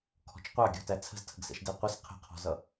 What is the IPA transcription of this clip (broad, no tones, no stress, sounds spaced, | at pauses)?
kʰ ɔ̤ t͡ʃ qʷ ɑ ɡʲ ɔ̤ t æ t͡sʰ ə̤ z tʰ ə̤ ɡ s ɛ̰ ʃ d ɛ qʷ ə s qʰ ə̤ qʰ ɔ̤ z ʌ